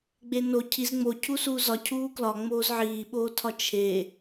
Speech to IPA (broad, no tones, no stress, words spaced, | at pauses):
ɡ͡beno cʰiz ŋ͡mo cʰusuːzɒ cʰuːklɒ ŋ͡moːzʕiːɓoːtʰɒ t͡ʃʰe